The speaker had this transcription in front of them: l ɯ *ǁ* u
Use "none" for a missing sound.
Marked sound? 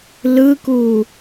k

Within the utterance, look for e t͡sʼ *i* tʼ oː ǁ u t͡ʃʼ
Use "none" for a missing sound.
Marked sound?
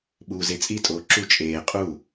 i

